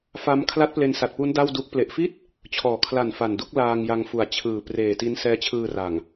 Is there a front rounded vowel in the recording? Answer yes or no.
no